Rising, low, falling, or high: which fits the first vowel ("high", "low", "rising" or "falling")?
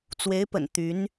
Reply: rising